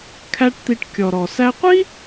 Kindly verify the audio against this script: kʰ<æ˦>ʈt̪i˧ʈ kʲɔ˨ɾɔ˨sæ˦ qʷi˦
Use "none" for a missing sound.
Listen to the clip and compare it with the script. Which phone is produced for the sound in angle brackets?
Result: æ˦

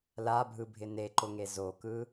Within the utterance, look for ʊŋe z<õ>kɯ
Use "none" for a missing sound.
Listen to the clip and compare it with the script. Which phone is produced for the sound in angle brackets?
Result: o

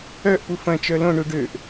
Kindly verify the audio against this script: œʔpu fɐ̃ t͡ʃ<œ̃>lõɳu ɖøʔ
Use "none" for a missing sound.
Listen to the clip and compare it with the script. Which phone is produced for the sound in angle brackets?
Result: œ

